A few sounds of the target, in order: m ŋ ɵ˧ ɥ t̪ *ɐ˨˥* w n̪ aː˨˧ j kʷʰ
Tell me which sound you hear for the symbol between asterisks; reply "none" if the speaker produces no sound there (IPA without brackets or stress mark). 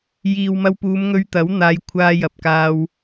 ɐ˨˥